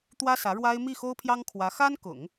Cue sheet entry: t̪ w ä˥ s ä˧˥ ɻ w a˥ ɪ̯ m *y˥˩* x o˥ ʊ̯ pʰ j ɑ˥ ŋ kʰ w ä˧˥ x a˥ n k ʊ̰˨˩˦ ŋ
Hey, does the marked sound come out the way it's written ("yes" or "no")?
no